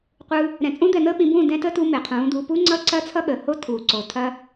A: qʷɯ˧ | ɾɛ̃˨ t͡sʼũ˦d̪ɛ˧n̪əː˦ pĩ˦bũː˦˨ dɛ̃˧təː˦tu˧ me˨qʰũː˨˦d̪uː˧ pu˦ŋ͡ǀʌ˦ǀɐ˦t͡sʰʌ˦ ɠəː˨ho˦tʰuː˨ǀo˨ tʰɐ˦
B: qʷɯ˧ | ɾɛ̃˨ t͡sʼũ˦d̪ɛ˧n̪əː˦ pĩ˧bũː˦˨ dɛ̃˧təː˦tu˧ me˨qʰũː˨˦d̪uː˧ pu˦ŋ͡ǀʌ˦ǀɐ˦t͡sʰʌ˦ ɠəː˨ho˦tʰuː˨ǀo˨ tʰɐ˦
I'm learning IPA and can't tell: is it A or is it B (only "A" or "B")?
B